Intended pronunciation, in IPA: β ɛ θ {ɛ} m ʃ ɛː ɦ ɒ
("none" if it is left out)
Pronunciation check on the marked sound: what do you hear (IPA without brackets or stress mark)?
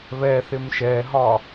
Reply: ɪ